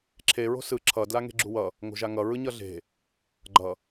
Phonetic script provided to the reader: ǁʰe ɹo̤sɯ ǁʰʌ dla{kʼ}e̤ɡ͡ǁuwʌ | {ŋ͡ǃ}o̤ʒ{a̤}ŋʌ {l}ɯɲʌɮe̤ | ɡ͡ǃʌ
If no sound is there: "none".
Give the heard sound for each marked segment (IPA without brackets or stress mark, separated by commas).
ŋ, ŋ, a, ɹ